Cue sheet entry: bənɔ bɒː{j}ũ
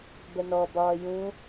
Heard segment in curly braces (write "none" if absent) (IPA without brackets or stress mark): j